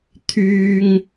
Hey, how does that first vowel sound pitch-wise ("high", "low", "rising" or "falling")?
high